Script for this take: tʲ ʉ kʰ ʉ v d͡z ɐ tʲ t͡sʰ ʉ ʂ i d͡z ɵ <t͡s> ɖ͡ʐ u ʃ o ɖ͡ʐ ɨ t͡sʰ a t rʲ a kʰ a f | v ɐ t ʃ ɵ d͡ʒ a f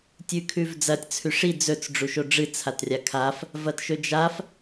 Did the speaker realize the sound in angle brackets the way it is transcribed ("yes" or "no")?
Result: yes